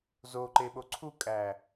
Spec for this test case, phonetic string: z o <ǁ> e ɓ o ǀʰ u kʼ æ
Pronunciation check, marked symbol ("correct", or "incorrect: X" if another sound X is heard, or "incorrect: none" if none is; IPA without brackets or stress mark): incorrect: ǃ